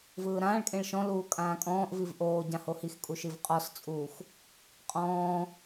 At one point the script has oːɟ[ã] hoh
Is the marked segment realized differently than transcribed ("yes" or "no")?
no